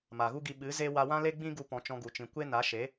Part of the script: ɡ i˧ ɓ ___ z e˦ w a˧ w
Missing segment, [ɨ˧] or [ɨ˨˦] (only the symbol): ɨ˨˦